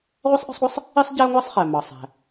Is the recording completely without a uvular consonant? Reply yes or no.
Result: no